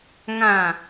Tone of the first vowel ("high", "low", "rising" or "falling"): falling